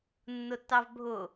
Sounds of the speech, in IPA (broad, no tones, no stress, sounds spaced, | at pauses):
nː ʊ tː ɑ v bʱ ʊ